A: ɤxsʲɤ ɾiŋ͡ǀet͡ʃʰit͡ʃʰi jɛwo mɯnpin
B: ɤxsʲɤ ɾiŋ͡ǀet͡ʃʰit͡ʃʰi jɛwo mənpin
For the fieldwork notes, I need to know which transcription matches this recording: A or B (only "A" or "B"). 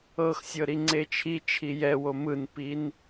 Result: A